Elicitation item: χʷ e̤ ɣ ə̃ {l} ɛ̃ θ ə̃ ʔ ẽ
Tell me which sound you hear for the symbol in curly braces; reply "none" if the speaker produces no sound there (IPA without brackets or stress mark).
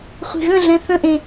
ɮ